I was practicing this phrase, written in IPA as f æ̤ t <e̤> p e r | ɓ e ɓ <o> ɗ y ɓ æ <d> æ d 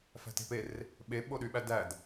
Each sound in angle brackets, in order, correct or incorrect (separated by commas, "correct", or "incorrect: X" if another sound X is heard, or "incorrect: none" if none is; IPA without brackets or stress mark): correct, correct, correct